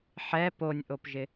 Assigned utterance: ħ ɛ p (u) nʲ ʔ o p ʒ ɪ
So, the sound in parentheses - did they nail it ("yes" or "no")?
no